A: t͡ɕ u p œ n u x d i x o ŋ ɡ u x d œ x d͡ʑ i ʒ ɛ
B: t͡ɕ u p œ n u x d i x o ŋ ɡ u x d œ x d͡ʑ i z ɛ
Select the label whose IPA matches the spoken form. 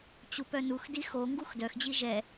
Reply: A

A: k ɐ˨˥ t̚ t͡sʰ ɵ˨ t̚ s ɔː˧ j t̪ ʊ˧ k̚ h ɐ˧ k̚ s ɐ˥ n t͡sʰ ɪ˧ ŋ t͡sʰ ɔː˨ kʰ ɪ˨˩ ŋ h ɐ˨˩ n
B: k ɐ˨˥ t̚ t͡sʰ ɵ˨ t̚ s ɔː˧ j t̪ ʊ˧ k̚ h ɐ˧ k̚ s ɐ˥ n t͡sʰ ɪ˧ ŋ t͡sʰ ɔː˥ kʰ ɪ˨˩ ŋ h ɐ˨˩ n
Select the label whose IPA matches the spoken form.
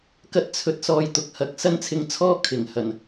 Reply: B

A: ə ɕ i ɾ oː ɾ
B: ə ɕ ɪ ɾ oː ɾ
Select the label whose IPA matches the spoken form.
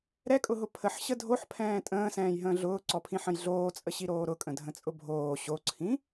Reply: A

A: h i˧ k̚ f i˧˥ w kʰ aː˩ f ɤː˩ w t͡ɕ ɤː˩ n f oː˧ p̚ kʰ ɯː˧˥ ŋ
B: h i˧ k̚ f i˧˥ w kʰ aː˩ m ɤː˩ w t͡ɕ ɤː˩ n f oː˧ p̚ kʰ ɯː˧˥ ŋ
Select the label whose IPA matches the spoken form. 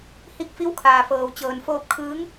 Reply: A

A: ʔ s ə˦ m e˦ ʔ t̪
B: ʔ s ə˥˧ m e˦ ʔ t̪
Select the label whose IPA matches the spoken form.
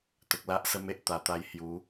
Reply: A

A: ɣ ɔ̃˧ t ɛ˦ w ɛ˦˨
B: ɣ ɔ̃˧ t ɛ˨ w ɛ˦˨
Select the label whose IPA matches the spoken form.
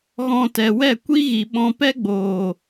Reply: B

